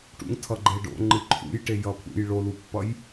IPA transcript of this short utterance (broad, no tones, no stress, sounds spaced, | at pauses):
ʈ ṵ ŋ tʰ ʌ ɡ͡ǃ e ɖ o̰ ŋ͡ǃ ɯ ǃʰ ṵ j ʈ e j ʌ pʰ ṵ j ɭ o l u pː ʌ j